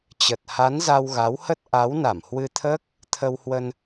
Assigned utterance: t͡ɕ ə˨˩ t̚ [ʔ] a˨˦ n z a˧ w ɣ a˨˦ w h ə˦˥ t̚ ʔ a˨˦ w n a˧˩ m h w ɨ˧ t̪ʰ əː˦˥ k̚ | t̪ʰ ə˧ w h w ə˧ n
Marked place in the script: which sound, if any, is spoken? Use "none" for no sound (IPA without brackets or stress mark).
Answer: h